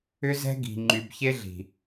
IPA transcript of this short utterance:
ʏ˦zɛ̤˦ɡi̤˨ ŋ͡ǃy˨bçe˦ɮi̤˨

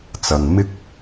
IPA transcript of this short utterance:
t͡sɐ˧ŋ mɪ˥k̚

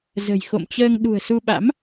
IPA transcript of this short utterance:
zə̤˨˩jxo̰˧˨mt͡ɕəː˧ŋ ɗṳ˨˩ə̯su˧ɓa̰˧˥m

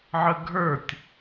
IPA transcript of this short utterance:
ʕəɡʱə˞tʲ

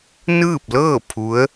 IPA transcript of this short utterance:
nɯː˥˨p̚lɤː˥˨ pʰu˧˥ə̯

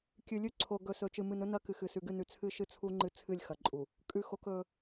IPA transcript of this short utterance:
kʲʉ˨lʲʉ˦ ǀʰo˨ɡɵ˨ sɵ˨t͡ʃɨ˨ mɨ˨nɵ˦nɐ˦ kɨ˨xɨ˨sʉ˨ɡɨ˦˨ nʉ˨t͡sʰɨ˦ʃɨ˦t͡sʰu˦ ŋ͡ǃɨ˦t͡sʰɨ˦˨lʲxɐ˨ǃʼu˨ | kʼʉ˦xo˦k ɵ˦

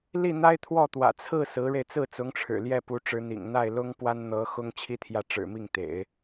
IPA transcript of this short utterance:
li˥˩ n̪a˥ɪ̯t̪ʰwɔ˥˩t̪wä̰˨˩ t͡sʰɹ̩˥˩ sɹ̩˧˥ɻe˧ɪ̯ t͡sɹ̩˥˩t͡sʊ˧˥ŋʈ͡ʂʰɻ̩˨˩ ljɛ˥˩pu˧˥ʈ͡ʂɻ̩˧˥n̪ḭ˨˩ŋ n̪a˥˩ɪ̯lʊ˥ŋpwa˥nn̪ɤ˧˥ xʊ˥ŋt͡ɕʰi˥t̪ʰjä˥˩ ʈ͡ʂɻ̩˨˩mi˥˩ŋt̪ḛ˨˩˦ɪ̯

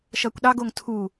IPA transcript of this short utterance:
ʃʌkʷɗɑɡ oŋtʰu

